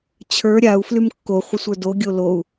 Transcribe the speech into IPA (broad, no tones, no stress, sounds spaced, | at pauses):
t͡ɕʰ ə˞ ɾʲ a u̯ f l y m kː o χʷ ə sʷ ə˞ d o ɡʲ o l o u̯